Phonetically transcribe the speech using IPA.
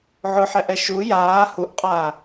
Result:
ʕ ʊ ħ ɛ ʔ ɛ ʃ u j aː h u ʔ qʼ aː

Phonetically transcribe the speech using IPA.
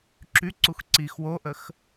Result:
ǁ y ǀ u x ǀ i x w o ʔ ə x

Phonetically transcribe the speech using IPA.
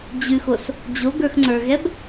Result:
d͡ʑ ʉ x o s | d͡ʑ o ɡ ə˞ x ŋ͡ǀ ə˞ ɣ ɛ b

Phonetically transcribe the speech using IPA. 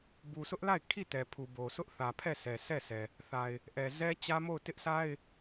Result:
b u˨ s ʊ˦ ʔ l a˦˨ ɪ̯ kʰ i˦˨ t ɛ˨ pʰ u˨ b o˨ s ʊ˦ ʔ θ ä˨ pʰ ɛ˦˨ s ɛ˨ sʰ ɛ˦˨ sʰ ɛ˨ | θ a˨ ɪ̯ | ʔ ɛ˨ z ɛ˦ t͡ɕ ä˦ m o˦˨ ʊ̯ t ɪ˦ ʔ sʰ a˦ ɪ̯

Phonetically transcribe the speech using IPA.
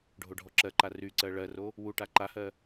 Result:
ɖʱ o ɖʱ ɔ ǁ ɜ ǃ a r y ǀ ɜ ɭ ɜ r o | w u ʈ a ǃ a h ɜ

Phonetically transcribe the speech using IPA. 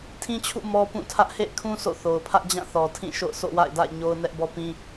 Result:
tʰ ĩ˦ t͡ɕʰ ṵ˦˨ m ɔ˦ p ũ˦˨ tʰ ä˦ ʔ h ḛ˦˨ ɪ̯ kʰ ũ˦ s o̰˦˨ θ o˨ ʊ̯ pʰ ä˦ ʔ d͡ʑ ã˦˨ θ ɔ˨ tʰ ĩ˦˨ ʃ o̰˦˨ ʊ̯ s o̰˦˨ w a̰˦˨ ɪ̯ d a̰˦˨ ɪ̯ ɲ o˦ ʊ̯ n ɛ˦ ʔ b ɔ˦ p ĩ˦

